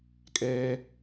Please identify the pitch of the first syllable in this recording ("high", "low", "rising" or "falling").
high